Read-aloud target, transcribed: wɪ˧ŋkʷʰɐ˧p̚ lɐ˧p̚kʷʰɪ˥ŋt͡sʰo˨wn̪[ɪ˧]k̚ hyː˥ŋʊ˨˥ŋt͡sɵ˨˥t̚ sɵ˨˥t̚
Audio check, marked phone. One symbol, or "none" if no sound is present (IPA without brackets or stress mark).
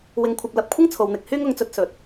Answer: ɪ˧